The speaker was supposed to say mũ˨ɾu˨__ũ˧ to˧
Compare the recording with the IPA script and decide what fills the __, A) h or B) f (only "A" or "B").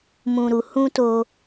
A